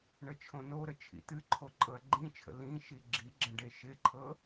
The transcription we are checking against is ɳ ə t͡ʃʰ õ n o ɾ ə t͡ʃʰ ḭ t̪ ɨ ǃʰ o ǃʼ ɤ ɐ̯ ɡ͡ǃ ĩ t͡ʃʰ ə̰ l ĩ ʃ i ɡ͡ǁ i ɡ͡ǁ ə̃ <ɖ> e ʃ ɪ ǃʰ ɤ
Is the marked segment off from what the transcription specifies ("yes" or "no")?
no